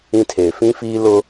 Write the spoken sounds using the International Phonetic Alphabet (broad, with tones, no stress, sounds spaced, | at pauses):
ĩ˦ tʰ eː˨ f ĩ˦ f iː˦ l ʊ˦